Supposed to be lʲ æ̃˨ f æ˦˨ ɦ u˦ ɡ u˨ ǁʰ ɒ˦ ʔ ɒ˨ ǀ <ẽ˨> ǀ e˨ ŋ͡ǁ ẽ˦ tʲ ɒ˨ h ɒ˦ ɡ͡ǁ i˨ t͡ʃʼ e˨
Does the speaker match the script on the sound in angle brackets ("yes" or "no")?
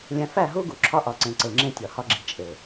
yes